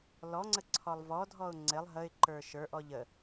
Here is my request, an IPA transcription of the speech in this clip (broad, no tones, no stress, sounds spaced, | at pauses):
l ɔ ŋ͡ǀ ə ǀʰ ɔ lˠ v ɔ dʱ ɔ ʊ̯ ŋ͡ǀ ɪ lˠ ɦ ə ɪ̯ ǃ ə˞ ʃ ə˞ ʔ ɔ ʎ ə